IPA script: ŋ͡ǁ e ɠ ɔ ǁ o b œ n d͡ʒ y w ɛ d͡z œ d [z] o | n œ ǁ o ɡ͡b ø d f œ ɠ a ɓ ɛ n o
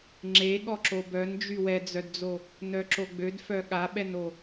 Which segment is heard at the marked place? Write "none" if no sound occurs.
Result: d͡z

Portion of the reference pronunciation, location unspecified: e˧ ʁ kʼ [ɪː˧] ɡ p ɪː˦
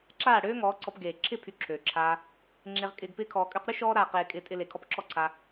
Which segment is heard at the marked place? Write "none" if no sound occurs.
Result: ɪː˧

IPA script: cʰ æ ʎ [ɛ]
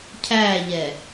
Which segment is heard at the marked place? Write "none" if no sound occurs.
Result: ɛ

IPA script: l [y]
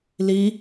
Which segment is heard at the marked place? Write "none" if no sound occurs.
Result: i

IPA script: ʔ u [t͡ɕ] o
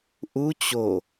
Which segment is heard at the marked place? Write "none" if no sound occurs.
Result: t͡ɕ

